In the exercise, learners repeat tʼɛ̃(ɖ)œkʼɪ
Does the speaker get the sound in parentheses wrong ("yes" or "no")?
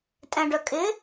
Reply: no